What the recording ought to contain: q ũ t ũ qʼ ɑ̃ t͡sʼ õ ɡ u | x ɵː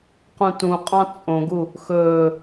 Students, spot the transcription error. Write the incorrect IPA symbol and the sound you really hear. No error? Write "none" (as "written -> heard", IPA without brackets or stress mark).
none